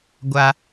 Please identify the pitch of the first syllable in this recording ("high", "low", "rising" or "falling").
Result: high